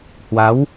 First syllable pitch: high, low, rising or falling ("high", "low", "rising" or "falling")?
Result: rising